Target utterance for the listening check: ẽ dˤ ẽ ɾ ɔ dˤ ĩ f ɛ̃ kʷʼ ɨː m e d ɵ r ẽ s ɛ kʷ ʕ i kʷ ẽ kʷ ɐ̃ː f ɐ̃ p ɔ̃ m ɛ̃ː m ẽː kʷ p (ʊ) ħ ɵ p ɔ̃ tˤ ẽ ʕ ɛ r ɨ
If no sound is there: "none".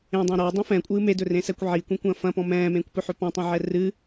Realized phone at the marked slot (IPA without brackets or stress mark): ɵ